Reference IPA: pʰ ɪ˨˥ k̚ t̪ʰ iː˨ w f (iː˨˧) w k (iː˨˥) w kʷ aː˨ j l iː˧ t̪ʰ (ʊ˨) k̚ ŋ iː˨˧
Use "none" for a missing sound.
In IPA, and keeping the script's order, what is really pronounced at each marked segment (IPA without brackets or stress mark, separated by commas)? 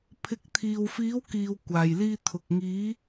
iː˨˧, iː˨, ʊ˨